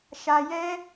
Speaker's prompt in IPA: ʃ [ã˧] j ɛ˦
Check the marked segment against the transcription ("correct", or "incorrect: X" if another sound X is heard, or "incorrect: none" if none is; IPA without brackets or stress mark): incorrect: a˧